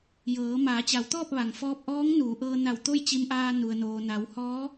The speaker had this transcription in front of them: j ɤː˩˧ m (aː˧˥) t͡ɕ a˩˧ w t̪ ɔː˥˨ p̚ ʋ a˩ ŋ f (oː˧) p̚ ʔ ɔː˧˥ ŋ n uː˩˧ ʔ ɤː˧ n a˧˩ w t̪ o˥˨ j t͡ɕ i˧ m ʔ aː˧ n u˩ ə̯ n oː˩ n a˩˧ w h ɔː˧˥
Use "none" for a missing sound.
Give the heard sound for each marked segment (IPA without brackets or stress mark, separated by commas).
aː˩˧, ɔː˧